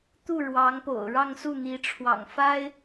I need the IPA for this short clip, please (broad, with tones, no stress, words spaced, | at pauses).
t̪u˥˩ɻwɑ˧˥ŋpo̰˨˩ʊ̯ ɻɑ˥˧ŋsu˥˩n̪i˧˥ ʈ͡ʂʰwɑ̰˨˩ŋfa˥ɪ̯